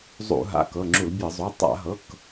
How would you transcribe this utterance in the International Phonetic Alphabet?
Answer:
zˤ ṵ˧˩˧ ɦ a̰˩˧˩ k ɤ˩˧˩ ŋ͡ǁ u˧˩˧ l bʲ ɤ˧˩˧ zˤ o˩˧˩ tˤ a̰˧˩˧ ɦ ɤ˩˧˩ k

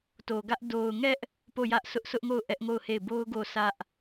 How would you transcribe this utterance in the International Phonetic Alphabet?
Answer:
t o˨ ɡ ä˦ ʔ d o˨ ʊ̯ ŋ ɛ˦ ʔ | p o˦˨ j ä˦ ʔ sʰ ʊ˦ ʔ s ʊ˦ ʔ ŋ o˦˨ ʊ̯ ʔ ɛ˦ ʔ ŋ o˦˨ ʊ̯ h e˦˨ ɪ̯ b o˦ ʊ̯ ɡ o˦˨ sʰ ä˦ ʔ

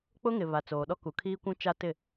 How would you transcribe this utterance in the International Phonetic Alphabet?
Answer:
k͡p ʊ˦ ŋ ɪ˨ β a˨ t͡s oː˨ ɗ ɔ˦ k u˨ kʰ iː˦ kʷ ũ˦ t͡ʃ a˦ t ɪ˦˨

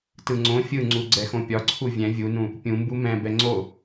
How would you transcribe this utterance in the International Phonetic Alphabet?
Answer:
t ɯ ŋ͡ǀ õ fʲ ɯ ŋ͡ǀ u ɡ͡ǀ ɛ x õ pʲ ɒ ǀʰ u vʲ ɛ̃ vʲ u n ũ | pʲ ũ m b u m ɛ̃ b ɛ ŋ͡ǀ o

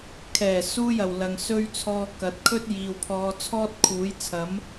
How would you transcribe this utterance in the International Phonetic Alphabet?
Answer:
kʰ ɛː˨˩ s uː˧ j ɐ˨˩ w l ɐ˨ ŋ s ɵ˧ ɥ t͡sʰ ɔː˧ k ɐ˨˥ t̚ kʰ ɵ˥ t̚ j iː˧ w pʰ ɔː˧ t͡sʰ ɔː˥ t̚ kʰ uː˨˥ j t͡sʰ ɐ˨˥ m

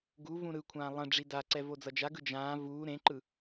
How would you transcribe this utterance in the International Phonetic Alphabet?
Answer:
ɡ u v ũ ɾ ɯ kʷʰ ãː lˠ ɛ̃ ɖ͡ʐ i d a ǀ ɛ v o d͡z ʌ d͡ʒ a ɡ ɯ d͡ʒ ãː v uː ɾ ẽ ǃ ɯ

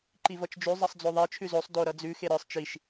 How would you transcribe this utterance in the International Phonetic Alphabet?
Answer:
ǃ i v ʌ t͡ʃ d͡ʒ ʉ zˤ ʌ sˤ d͡z o ðˤ e t͡ʃʰ ʉ z o sˤ d o ɾ ʌ d͡z ʉ x e ɾ ə˞ sˤ t͡ʃ i ʃ

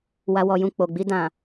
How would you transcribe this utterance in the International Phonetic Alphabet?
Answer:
w a˨ w ɔ˨ j ũ˨ k͡p o˨ ɡ͡b i˧ d ã˨

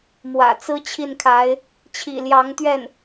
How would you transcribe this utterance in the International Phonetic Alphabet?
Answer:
m w ä̰˨˩ t͡s ɹ̩˥ t͡ɕʰ i˥˩ n kʰ a˧˥ ɪ̯ | t͡ɕʰ ḭ˨˩ l j ɑ˧˥ ŋ t̪ ɥ ɛ˥˩ n

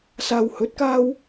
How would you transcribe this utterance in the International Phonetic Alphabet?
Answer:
s aː˨ w h ɵ˨˥ t̚ k aː˥ w

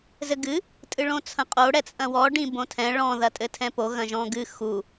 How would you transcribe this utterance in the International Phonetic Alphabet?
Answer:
z ɘ ɡ ɨ | tʼ ɨ ɭ õ t͡sʰ ɐ̃ qʼ o ɽ ɛ t͡sʼ ɐ̃ w ɔ ɖ ĩ b õ tʰ ɛ̃ ɭ ɔ̃ ð ɐ tʼ ɘ tʰ ɛ̃ p o ɣ ɐ̃ ʒ ɔ̃ ɡ ɨ x u

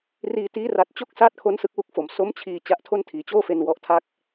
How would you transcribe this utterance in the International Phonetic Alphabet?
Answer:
r iː˧ t iː˦˥ r a˨˩ t̚ t͡ɕ o˥˩ k̚ s aː˥˩ t̚ kʰ o˦˥ n s ɯ˦˥ k̚ w u˥˩ k̚ f o˨˩ m s o˦˥ m t͡ɕʰ iː˧ t͡ɕ a˦˥ ʔ tʰ o˥˩ n tʰ iː˩˦ t͡ɕ oː˥˩ f e˧ n w ɔ˦˥ ʔ tʰ a˥˩ k̚

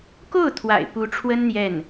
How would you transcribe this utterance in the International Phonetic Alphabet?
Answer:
k o˥˩ ʊ̯ t̪ʰ w a̰˨˩ ɪ̯ p u˧˥ ʈ͡ʂʰ w ə˥ n n̪ j ɛ˥˩ n

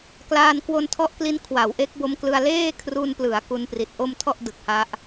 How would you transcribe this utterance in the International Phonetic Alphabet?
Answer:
k l aː˧ n k w o˧ n tʰ ɔ˦˥ ʔ k l i˦˥ n kʰ w a˩˦ w ʔ e˦˥ k̚ b o˦˥ m k l ɯ˧ a̯ l eː˥˩ kʰ r u˧ n p l ɯ˩˦ a̯ k u˧ n p r i˨˩ t̚ ʔ o˥˩ m tʰ ɔ˥˩ ʔ d ɯ˨˩ k̚ h a˦˥ ʔ

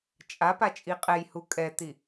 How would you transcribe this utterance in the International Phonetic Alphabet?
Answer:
t͡ʃʼ a p a t͡ʃʼ i qʼ ɛ j h u kʼ ɛ t̪ i

